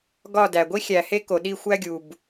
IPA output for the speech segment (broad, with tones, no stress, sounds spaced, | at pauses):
ɡ ɒ˥˧ d æ˨ ɡʷ i˥ xʲ æ˨ h e˥ k o˨ ɗ i˥˧ xʷ æ˥ ɡʲ u˨ b